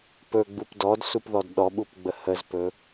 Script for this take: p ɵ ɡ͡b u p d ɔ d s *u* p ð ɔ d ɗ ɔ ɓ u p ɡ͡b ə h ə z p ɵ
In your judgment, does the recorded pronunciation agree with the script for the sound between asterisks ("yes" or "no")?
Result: yes